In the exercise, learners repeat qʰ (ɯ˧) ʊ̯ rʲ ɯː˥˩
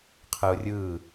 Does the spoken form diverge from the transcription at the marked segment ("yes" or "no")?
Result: no